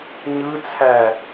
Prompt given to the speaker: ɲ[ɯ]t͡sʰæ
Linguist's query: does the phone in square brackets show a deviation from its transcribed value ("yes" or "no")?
no